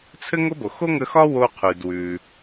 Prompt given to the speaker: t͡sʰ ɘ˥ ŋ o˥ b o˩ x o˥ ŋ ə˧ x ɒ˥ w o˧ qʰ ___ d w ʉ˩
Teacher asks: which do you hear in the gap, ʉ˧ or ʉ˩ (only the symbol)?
ʉ˩